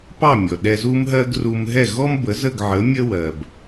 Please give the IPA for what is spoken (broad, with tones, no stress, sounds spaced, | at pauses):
p ɑ˥˩ mʲ ɔ˩ ɗ ɛ˧ z u˥ m ɦ ɜ˥ ɡ r u˧ m ɦ ɛ˥˩ ɣ ɔ˥ m b ə˩˥ z ə˥˩ ɡ ʕ ə˩˥ mʲ ə˥ w ɜ˩ b